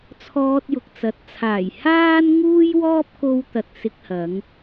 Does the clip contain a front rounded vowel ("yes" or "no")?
no